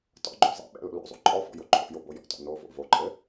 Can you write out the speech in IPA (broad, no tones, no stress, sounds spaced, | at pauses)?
t ɔ̰ ɡ͡ǃ o̰ zˤ ɛ̰ ɓ ɛ̰ l o̰ l o̰ zˤ o̰ ǃʼ ɔ f ɔ̰ j o ǃʰ o̰ j o b o j ɔ̰ t ɔ̰ n o v o̰ v o ǃʼ ɘ